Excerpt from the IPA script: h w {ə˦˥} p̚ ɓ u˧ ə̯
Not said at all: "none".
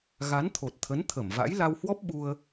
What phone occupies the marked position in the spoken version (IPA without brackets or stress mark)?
ɔ˦˥